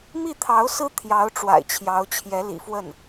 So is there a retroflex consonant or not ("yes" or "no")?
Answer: yes